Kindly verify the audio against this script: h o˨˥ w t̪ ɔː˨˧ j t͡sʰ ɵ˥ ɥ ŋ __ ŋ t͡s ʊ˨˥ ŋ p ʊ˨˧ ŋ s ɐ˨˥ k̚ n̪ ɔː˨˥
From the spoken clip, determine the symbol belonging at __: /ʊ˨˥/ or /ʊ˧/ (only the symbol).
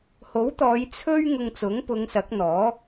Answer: ʊ˧